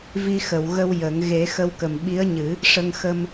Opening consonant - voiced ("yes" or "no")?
yes